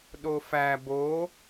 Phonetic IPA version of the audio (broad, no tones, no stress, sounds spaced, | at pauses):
ɗ o f æ b o